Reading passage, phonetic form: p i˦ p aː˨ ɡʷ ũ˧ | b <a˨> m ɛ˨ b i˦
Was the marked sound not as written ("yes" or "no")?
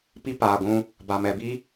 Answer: no